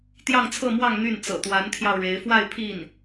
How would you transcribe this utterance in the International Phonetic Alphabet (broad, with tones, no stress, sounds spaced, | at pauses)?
t̪ j ɑ˥˧ ŋ t͡sʰ ɤ˥˧ m w ɑ˥˧ ŋ n̪ y˥˩ n t͡s ɤ̰˨˩ t̪ w a˧˥ n t̪ʰ j ɑ˧ ʊ̯ ɻ e˧˥ ɪ̯ f w a˥˧ ɪ̯ pʰ i˥˩ n